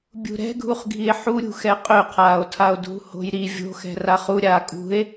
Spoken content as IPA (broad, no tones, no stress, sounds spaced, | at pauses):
bʲ ṳ ɾ ɛ̤ ɡʱ u χ ɡʱ i e̯ ħ u ɾʲ ṳ x ɛ qʼ ø qʰ aː o̯ tʰ a o̯ dʱ ṳ h o̤ j ɾ i vʲ o̤ x ɛ̤ r a χ u ɾʲ aː kʼ ṳ e̯